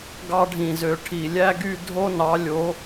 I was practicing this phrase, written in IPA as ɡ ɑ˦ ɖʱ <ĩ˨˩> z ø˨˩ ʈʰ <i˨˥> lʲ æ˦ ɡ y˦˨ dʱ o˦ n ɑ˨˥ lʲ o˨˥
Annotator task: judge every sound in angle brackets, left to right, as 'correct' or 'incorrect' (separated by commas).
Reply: correct, incorrect